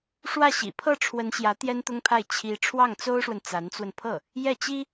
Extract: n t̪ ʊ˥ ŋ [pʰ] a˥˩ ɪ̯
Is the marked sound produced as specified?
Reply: yes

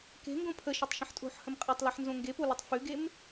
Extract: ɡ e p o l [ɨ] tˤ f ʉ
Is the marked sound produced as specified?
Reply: yes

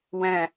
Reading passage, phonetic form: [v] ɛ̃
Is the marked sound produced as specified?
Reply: no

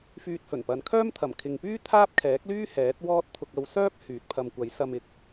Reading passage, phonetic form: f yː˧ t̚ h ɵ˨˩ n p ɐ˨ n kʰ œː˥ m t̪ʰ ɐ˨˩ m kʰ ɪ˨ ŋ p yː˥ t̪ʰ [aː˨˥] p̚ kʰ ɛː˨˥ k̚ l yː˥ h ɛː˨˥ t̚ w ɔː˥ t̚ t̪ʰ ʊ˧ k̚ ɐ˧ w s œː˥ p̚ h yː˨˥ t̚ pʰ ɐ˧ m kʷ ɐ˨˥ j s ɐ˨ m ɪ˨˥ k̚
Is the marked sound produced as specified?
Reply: no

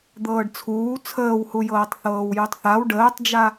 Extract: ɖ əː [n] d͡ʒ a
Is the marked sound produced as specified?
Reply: no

